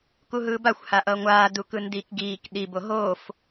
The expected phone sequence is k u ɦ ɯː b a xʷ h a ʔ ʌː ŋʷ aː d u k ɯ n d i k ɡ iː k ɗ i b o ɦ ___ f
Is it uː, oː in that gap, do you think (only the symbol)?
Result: oː